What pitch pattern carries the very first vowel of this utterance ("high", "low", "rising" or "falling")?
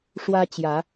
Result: high